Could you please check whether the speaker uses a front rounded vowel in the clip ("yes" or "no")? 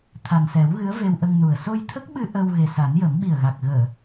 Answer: no